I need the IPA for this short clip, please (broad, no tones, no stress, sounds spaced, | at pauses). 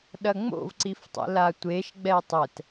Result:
ɗ ɐ ŋ͡m o̰ v ǀ i f tˤ ɛ̰ l a tʷ e ʃ ɡ͡b ɛ tˤ ɛ t